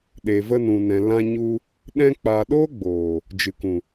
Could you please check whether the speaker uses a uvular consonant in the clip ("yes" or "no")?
no